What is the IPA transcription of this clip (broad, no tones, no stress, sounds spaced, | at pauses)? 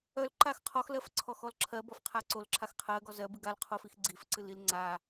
œ l ǃ a x qʰ ɔ x l ɜ f ǀʰ ɔ x ɔ l ǁʰ ɜ b ɔ f qʰ a ǀ o l ǁʰ a x qʰ ɜ ɡ ɔ z ɜ b ɨ ɡ a l qʰ o f i x ɡ͡ǀ i f ǀ ɨ l i l ŋ͡ǀ a